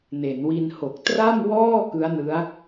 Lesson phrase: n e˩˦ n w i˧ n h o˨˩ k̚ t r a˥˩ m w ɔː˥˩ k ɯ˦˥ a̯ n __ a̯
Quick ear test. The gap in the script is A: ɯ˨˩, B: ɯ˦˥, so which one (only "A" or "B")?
B